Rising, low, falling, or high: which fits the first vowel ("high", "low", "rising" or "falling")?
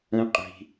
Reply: high